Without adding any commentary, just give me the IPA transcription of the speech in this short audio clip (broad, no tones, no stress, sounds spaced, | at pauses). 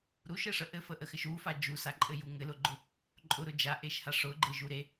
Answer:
ɾ u ʃ ɘ ʂ ə ʔ ɘ f ə ʔ ə x ɘ ʃ u f a d͡ʒ u s a ǃʼ ɘ j u ŋ ɘ l ʊ ɡ͡ǃ ʊ | ǃʼ ʊ ɾ ʊ d͡ʒ a ʔ e ʃ h a ʂ ʊ ɡ͡ǃ e ʒ u ɾ e